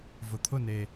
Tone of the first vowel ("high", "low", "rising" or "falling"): low